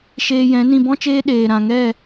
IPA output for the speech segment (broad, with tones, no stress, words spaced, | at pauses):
ʃeː˧jɛ̃˨˦nĩ˧ bɔ̃˦t͡ʃeː˦ ɗeː˨ ɾã˨ŋɛ˦˨